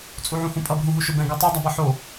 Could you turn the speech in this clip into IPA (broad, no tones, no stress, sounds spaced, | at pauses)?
t͡sʼ u ʕ ũ h ũ pʼ ʌ b ɦ ũ ɦ u ʃ o b ɛ̃ ɡ u tˤ o dˤ a b ʌ ħ o